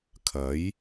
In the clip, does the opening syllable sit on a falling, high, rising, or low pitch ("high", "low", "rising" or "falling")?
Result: rising